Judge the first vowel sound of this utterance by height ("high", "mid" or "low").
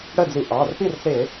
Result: mid